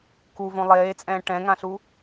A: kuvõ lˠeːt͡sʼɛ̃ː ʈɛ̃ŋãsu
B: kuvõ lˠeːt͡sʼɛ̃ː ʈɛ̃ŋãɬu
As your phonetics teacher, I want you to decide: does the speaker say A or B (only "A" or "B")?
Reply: B